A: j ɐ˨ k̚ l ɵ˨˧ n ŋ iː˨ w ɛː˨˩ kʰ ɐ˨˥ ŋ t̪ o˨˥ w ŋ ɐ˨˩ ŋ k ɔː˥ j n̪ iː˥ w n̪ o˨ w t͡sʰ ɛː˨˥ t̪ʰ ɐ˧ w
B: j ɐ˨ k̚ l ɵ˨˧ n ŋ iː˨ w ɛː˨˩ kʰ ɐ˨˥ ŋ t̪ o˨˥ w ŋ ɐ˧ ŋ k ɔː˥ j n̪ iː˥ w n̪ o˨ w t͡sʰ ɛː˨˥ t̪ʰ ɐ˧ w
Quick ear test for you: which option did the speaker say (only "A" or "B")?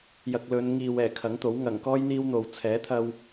A